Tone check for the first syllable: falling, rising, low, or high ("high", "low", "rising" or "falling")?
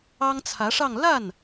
high